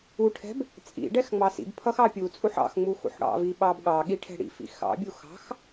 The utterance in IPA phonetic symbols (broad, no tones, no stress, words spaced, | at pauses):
uʈʰɛ̤b | t͡sʼḭɖɛx ŋ͡mɑsḭbpʰʌx ɑpʲut͡sʼuħ ɑ̰xŋ͡mu xṵħɽɑ̰vi ɓɑbɠɑɠi ʈʰɛ̤ɽḭfḭ xɑ̰bʲu xɑ̤x